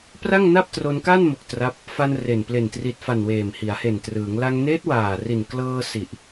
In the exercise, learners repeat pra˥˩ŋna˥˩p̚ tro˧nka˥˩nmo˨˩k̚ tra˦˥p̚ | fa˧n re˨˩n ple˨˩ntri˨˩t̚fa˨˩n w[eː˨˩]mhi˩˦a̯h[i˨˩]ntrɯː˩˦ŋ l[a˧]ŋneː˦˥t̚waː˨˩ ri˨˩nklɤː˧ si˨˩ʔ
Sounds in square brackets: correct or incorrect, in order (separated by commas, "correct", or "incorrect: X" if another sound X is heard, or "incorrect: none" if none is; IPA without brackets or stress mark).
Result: correct, incorrect: e˨˩, correct